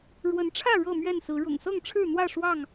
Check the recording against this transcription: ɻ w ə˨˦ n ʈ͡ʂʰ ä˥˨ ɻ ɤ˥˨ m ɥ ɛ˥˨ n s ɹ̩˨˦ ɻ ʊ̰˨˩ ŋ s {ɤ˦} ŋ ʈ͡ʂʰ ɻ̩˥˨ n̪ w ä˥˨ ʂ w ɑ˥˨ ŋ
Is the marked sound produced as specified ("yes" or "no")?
no